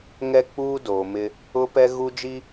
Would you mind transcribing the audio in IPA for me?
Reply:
ŋ ɛ˦ k͡p uː˦ d oː˨ m ɪ˦ | ʊ˦ p ɛ˦ ɣ u˦ d͡ʒ i˦

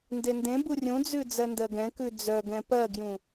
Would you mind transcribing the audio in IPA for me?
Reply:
n d e n d ẽ b u rʲ ũ d͡z ʉ d͡z ɜ n d ɜ ɡ ɛ̃ k ʉ d͡z œ ɡ ɛ̃ p ɜ ɡ j ũ

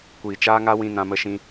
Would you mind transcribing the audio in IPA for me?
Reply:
kʷ iː˨ t͡ʃ aː˦ ŋ a˦ w ĩ˧ n ã˧ m ə˧ ʃ ĩ˧

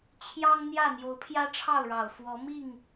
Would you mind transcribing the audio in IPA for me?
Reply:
t͡ɕʰ j ɑ˦ ŋ n̪ j ä˥˨ n̪ j o˨˦ ʊ̯ pʰ j ä˦ ʈ͡ʂʰ ɑ˥˨ ʊ̯ ɻ ɑ˨˩ ʊ̯ f w ɔ˨˦ m i˥˨ ŋ

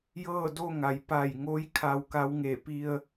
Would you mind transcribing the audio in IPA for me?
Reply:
j ɤː˥˨ d o˥˨ ŋ a˩˧ j p a˧˩ j ŋ o˧˥ j kʰ a˧ w k a˧˥ w ŋ e˧˩ p i˧ ə̯

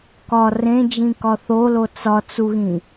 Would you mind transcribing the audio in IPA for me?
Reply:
k ɒ r ẽ d͡ʒ ĩ k ɒ θ o l o t͡s ɒ t͡s u ɣ ĩ

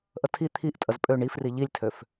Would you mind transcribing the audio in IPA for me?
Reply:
ʔ ə tʰ i t̪ʰ i ʔ tʼ ə z pʼ ø ɳ i f r i ʎ i lʲ tʰ ø f

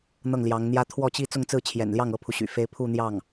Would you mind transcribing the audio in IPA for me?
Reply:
n̪ ɤ˥˩ ŋ l j ɑ˧˥ ŋ n̪ j ä˥ t̪ʰ w ɔ˥˧ t͡ɕ i˥˧ t͡s ʊ˥˧ ŋ t͡s ɹ̩˥˩ t͡ɕʰ j ɛ̰˨˩ n l j ɑ˥˩ ŋ ɤ˥ pʰ u˨ ɕ y̰˨˩ f e˥ ɪ̯ pʰ u˥˧ n̪ j ɑ˥˩ ŋ

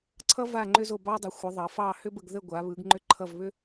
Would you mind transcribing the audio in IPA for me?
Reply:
ǀʰ ʌ˦ v a˦˨ ŋ͡ǃ ʏ˦ z o˦˨ b ɑ˦ dˤ ʏ˩˧ xʷ ə˩˧ ðˤ ʌ˩˧ f ɑ˦˨ h ʏ˦ b ə˦˨ ɡ ð ə˦˨ ɡʷ a˩˧ β ɯ˩˧ ɡ ŋ͡ǃ ʏ˦ ǃʰ ʌ˦˨ v β ʏ˦

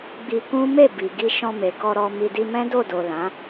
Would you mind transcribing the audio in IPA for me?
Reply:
ɡ͡b i˧ k ũ˦ m e˦˨ b i˨ ɡ i˧ ʃ ɔ̃˧ m e˨ k ɔ˧ ɾ ɔ˧ m i˧ d i˧ m ɛ̃˦ d o˦˨ d o˨ l ã˨˦

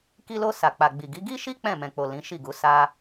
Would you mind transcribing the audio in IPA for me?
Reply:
k i˧ l o˧ s a˨ k͡p a˨ ɡ͡b i˨ ɡ i˨˦ ɡ i˦ ʃ i˦ k͡p ɛ̃˦˨ m ɛ̃˨ k͡p o˨ l ĩ˨˦ ʃ i˦˨ ɡ u˨˦ s a˧

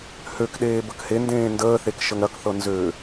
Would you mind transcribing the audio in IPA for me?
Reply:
h ø k ɗ eː b ə k h e n d ẽː n d əː θ e k ʃ ə ŋ ɾ ɐ k θ ɤ n z ø

